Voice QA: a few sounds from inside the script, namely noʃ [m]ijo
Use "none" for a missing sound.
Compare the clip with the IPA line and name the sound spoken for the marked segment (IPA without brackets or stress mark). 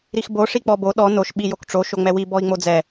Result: ɓ